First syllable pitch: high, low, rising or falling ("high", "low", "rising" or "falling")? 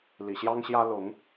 low